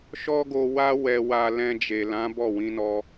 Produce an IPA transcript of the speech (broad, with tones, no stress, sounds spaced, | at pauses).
ʃ ɔ˦ ɡ o˧ w a˦ w ɛ˧ w a˧ l ɛ̃˧ d͡ʒ e˨ l ã˨˦ b ɔ˦˨ w ĩ˧ n ɔ˧